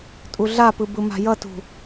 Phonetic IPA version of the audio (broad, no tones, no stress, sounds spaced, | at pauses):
tʼ u ɮ a p ɯ b ɯ m a̤ j ʌ t ṳ